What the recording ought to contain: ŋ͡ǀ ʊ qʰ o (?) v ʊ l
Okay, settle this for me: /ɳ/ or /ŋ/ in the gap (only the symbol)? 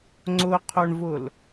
ɳ